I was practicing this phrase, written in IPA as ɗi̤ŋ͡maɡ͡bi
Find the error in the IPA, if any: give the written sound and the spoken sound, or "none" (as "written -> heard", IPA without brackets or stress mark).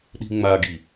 ɡ͡b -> ɡ